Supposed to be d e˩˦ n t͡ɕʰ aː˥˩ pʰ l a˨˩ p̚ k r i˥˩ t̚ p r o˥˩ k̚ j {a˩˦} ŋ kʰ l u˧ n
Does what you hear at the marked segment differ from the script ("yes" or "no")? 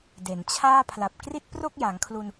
no